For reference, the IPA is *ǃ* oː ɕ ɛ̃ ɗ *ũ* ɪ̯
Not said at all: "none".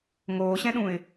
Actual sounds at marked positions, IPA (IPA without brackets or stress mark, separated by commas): ŋ, ũ